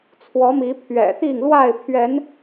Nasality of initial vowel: oral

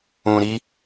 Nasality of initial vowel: nasal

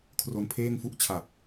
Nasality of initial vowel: oral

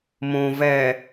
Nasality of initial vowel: nasal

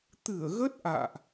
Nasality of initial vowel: oral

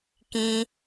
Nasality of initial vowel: nasal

